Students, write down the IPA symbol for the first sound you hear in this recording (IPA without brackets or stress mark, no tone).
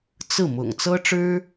t͡s